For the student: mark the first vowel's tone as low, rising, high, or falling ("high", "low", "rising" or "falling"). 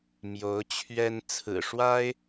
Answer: rising